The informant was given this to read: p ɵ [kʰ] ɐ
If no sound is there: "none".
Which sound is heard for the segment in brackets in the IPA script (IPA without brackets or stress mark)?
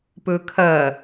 kʰ